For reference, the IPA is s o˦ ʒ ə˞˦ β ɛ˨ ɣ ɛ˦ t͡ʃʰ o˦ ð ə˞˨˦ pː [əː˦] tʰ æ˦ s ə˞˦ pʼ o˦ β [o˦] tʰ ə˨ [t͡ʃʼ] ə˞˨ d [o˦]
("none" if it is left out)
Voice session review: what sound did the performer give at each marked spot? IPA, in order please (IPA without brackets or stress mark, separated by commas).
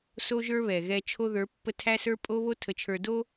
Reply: ə˦, o˦, t͡ʃʰ, o˦